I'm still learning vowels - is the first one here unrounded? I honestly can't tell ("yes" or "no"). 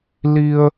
yes